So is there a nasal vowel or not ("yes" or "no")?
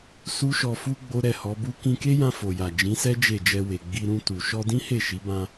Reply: yes